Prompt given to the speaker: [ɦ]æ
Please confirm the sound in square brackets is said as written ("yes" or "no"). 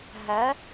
yes